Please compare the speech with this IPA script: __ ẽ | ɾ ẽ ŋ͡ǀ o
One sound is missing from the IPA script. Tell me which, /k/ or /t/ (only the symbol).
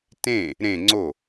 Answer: t